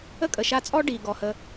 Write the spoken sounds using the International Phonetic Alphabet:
ə˦ kʼ ə˨ ʃ a˧ t͡sʼ ɔ˦ ɖ i˨ ɡ ɔ˨ h ə˧

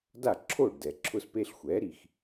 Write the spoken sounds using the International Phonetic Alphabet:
d a˥˩ ǁʰ o˥˩ ɖ d ɛ˩ ǁʰ ʊ˧ s p e˧ ɬ xʷ ɛ˩˥ ɾ i˩ x

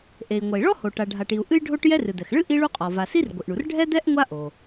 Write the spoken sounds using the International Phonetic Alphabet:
ʔ e˩ i̯ ŋʷ ɐ˩ i̯ ɭ ɔ˥ h o˩ ʈ a˩ ɖʱ a˩ ʈ i˩ u̯ ʔ ɨ˥ j ɖʱ o˥ ʈ j ɛ˥ r ɨ˩ d̪ ɛ˩ x ɭ ɨ˥ ʔ i˥ ɭ u˥ qʼ ɔ˩ v a˩ s i˥ r ɡʷ ɨ˩ ʔ ɳ u˩ r ɖʱ ɛ˥ d̪ ɛ˥ ʔ ŋʷ a˥ ʔ o˩

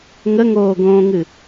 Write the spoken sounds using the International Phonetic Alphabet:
ŋ ə ŋ oː ɡ õː ŋ ɨ

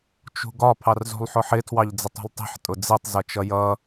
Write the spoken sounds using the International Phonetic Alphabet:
t͡ʃ ṳ ɡ ɒ pʰ ɑ r z ṳ lˠ ħ ʊ ħ ɪ tʰ w ɑ ʎ d͡z ɪ tˤ ṳ lˠ tˤ i̤ ħ tʼ ʊ d͡z i tˤ z ʌ t͡ʃ ʌ j ʌ

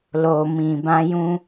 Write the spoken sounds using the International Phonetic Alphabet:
l o˨ m ĩ˨ b ã˧ j ũ˧

